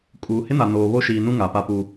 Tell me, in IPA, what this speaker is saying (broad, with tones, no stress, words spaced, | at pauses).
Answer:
kʼuː˨hɪ˦na˨ noː˨βo˦ʃiː˨ nũ˦ ŋa˨pa˦pu˦